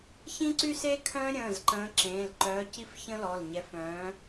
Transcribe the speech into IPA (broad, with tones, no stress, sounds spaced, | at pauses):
ç ĩ˦ ǀ y˦ s e˦ kʰ œ̃ː˦ ɾʲ ə̃ː˩˧˩ z ǃ ə̃ː˨˦ ǁ ẽː˩˧˩ l ǃ œː˨˦ c i˦ f ç ə̃˦ l ɔ˩˧˩ l ɲ ɛ˨˦ f œ̃ː˨˦